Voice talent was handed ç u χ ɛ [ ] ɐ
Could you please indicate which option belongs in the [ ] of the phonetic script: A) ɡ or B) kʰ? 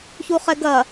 A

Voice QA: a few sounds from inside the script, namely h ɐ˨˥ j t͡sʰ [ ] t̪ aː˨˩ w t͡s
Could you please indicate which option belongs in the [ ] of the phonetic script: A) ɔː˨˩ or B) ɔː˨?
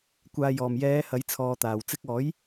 B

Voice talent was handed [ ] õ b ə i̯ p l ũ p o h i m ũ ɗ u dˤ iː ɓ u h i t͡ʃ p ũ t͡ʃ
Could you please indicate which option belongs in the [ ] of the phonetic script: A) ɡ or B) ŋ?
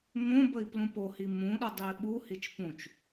B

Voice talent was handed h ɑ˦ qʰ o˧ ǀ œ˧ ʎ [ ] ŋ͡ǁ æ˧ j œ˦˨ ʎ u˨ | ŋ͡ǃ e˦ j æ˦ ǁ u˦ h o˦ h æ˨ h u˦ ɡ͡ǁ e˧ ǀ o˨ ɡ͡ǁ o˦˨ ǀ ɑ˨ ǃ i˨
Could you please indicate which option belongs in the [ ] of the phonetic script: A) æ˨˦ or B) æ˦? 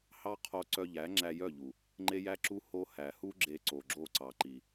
A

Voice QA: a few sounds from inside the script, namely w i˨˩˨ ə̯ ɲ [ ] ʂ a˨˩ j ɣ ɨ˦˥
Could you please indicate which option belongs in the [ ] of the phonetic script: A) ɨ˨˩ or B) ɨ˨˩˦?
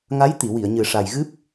A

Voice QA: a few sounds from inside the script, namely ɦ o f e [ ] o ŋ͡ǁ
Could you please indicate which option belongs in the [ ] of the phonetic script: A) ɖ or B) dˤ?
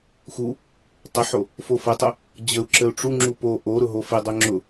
B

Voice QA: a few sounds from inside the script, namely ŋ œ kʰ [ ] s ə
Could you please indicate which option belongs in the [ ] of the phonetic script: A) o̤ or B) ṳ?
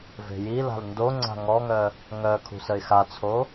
B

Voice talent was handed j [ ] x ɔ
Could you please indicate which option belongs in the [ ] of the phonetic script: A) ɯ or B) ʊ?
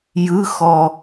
A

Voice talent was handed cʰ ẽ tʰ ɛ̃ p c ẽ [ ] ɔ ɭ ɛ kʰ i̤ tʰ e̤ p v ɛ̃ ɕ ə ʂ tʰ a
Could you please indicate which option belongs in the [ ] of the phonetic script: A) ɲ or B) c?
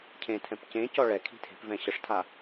B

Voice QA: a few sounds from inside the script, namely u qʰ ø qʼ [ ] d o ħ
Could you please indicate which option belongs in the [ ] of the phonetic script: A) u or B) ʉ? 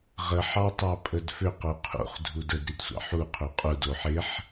A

